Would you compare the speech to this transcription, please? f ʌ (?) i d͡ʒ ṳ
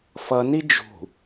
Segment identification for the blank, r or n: n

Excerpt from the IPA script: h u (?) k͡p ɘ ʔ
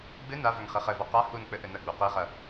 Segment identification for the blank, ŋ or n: n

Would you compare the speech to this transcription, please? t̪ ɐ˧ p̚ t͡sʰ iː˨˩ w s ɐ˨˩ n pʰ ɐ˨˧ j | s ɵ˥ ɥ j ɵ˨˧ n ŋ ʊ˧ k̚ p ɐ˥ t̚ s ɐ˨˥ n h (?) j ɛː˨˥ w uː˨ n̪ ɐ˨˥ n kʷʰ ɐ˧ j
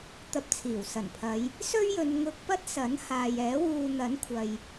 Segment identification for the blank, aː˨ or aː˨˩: aː˨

